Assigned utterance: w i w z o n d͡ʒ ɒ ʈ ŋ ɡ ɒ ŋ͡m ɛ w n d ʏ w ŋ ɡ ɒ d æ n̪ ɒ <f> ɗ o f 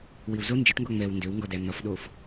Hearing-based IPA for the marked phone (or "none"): f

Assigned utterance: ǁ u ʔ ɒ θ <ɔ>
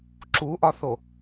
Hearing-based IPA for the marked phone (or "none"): o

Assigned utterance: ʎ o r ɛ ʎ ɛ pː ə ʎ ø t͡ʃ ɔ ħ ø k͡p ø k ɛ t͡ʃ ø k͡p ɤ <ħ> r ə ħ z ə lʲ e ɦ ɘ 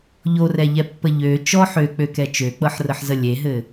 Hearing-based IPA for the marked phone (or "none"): ħ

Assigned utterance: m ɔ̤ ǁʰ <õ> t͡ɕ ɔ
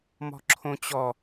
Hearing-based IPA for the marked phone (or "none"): õ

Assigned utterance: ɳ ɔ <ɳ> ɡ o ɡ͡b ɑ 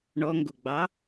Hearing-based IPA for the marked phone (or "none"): ŋ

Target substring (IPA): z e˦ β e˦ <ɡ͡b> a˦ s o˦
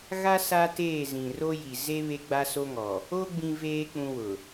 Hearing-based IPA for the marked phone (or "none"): ɡ͡b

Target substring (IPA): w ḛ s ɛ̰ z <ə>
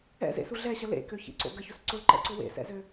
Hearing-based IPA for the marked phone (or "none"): ø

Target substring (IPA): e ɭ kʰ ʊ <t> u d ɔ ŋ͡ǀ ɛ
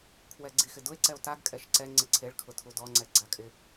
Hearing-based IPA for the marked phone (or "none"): tʰ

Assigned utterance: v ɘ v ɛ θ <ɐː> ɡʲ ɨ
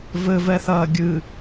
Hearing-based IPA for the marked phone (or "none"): ɐː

